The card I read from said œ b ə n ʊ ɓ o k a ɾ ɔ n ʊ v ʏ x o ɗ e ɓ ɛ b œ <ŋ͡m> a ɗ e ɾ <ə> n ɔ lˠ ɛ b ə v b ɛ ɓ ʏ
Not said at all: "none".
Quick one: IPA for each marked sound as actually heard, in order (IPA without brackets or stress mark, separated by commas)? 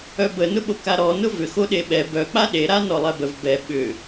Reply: k͡p, a